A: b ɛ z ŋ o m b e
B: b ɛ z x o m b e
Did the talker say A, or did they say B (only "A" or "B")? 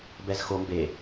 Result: B